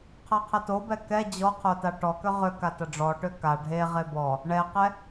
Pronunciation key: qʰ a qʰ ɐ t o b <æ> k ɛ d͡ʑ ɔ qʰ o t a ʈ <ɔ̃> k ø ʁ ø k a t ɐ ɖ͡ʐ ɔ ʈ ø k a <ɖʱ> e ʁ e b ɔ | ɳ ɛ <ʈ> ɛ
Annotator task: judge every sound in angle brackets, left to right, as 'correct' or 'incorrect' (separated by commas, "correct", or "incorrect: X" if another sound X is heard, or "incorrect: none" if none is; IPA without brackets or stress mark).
incorrect: ɛ, incorrect: ɔ, correct, incorrect: q